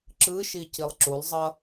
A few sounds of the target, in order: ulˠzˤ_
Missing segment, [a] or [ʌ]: ʌ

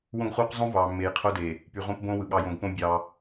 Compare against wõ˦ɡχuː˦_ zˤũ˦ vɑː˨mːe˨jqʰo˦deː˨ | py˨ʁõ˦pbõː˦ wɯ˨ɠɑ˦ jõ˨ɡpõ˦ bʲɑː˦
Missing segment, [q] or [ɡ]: q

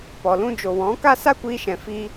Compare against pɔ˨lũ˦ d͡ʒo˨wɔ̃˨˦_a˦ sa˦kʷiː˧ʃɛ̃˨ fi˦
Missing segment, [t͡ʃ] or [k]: k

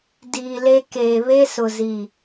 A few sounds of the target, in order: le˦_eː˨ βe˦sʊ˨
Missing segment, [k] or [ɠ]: k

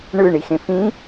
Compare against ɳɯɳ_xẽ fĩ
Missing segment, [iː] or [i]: i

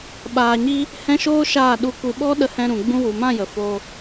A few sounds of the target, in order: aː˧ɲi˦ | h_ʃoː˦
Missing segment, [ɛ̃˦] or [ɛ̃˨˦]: ɛ̃˦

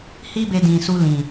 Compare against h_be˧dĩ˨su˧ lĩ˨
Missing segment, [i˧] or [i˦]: i˦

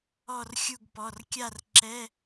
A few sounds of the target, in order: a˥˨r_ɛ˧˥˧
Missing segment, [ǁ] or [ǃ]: ǁ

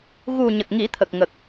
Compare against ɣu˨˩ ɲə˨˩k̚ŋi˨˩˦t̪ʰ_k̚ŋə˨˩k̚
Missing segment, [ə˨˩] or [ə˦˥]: ə˨˩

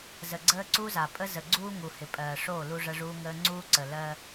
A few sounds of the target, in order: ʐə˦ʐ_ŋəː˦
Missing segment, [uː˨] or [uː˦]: uː˦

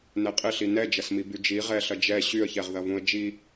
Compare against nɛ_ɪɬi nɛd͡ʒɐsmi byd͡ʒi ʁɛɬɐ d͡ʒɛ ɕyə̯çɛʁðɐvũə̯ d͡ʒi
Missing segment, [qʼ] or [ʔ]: qʼ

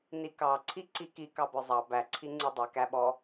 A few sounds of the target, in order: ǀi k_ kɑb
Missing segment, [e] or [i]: i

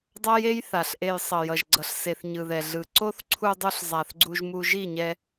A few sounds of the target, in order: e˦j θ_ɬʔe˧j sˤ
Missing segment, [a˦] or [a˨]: a˨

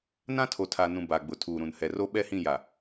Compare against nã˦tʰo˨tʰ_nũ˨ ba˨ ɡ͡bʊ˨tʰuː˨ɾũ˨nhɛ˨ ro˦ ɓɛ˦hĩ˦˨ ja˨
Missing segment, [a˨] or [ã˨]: a˨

